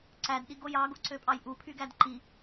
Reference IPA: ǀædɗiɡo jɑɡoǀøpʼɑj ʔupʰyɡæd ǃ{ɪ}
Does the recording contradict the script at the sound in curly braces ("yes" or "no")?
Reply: yes